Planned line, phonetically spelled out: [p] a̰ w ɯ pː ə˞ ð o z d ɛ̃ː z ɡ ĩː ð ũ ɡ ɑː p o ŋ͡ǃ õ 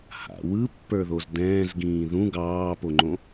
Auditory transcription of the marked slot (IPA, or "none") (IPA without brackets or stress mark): h